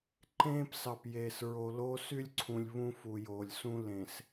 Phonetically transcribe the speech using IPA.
ǃ ẽː˦ p s ɑ˨ p j eː˨ s ɹ o˨ l oː˦ s y˦ lʲ ǀʰ ũ˨ lʲ β ũ˦ f u˨ j oː˨ lʲ s ũ˦ l ẽ˨ s

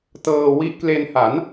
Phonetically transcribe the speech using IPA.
t ɤː˧ w i˦˥ ʔ k l e˧ n h a˩˦ n

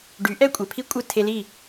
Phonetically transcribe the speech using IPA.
ɖ y˩˥ ʔ ɛ˥ kʷʼ ɛ˩ pʰ i˥ kʷʼ ɨ˥˩ tʰ e˧ l i˥˩

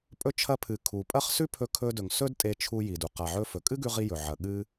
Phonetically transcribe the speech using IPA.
pʼ ɵ˧ t͡ʃʰ ɐ˧ pʰ ɨ˩ kʰ u˩ pʼ ɐ˥ χ s ʉ˥ pʰ ɵ˧ kʰ ɵ˧ d ɵ˩ ŋ s ɵ˥ d tʼ e˧ t͡ʃʰ u˧ j i˩ d u˩ q a˩ ʕ ɵ˧ f ɵ˩ kʼ ɨ˥ ɡ ʉ˧ ʁ i˧ j ɵ˩ ʕ ɐ˩ ɠ ɨ˧

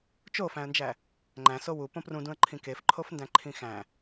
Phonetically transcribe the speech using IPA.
t͡ʃ o f æ̃ ə̯ n d͡ʒ æ | ŋ͡ǃ æ̃ s o w u p õ p r ũ d ũ ə̯ ǃʰ ĩ k e f ǃʰ o f n d æ̃ ǃʰ ĩ x æ̃

